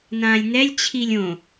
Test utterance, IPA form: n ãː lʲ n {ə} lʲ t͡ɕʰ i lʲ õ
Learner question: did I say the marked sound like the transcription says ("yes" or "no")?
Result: no